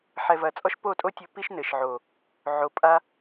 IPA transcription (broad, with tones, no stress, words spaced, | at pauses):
ħɛ˨vɐ˨ t͡sʼɔ˦ʃpo˦˨tʼo˦tʲɘ˧ pi˦ʃnɘ˨ʃʕo˨ | ʕo˨pʼa˧